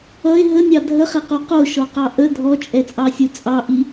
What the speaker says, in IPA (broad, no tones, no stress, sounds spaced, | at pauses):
ʌ e̯ ɦ ə nʲ ɑ dʱ ə χ ɛ q o q o ʃ ɔ q ɑ ʔ ə dʱ ɔ t͡ʃʼ ɛ t͡sʼ ɑ sʲ o t͡sʼ ɑ ʔ i